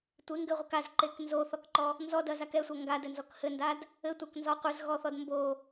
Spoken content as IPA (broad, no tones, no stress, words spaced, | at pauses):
tʷeŋɡɘʁʷɘk azǃek nzoθɔkǃɔ | nzɔdɐzak ɛsʷɐ ŋɡadɘnzɔk hɘndad | ɘtʷaknzɔ qʷɘzɣɔθɔd mbo